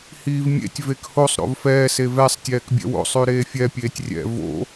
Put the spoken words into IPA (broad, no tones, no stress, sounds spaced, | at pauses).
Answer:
h iː v mʲ ḛ tʲ v e k h o sˤ ɾ o̰ v f ɛː s e v ɛ sˤ tʲ ɛː k bʲ ɛ̰ w o̰ sˤ ʉ ɾ eː fʲ ɛ pʲ eː tʲ rʲ ɛ̰ v o̰